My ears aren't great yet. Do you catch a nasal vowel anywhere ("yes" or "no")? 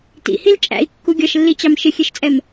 no